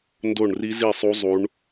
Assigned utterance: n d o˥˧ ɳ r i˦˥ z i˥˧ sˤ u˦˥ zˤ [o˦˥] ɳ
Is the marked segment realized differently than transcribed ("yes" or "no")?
yes